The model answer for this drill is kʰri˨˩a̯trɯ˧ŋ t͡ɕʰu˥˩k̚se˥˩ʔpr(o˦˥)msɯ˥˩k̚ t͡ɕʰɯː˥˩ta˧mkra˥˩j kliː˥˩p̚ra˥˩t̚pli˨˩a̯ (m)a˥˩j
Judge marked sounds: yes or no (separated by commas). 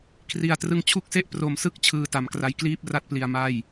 no, yes